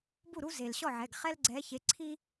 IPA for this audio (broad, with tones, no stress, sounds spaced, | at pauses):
b u˥˩ ɾ u˦ z e˩ l ɕ ɔ˥˩ ʕ ɛ˩˧˩ ɡ χ ɛ˦ l ɡ͡ǀ ɛ˨˦ ç e˨˦ ǀʰ i˦